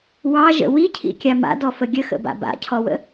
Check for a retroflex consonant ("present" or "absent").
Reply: absent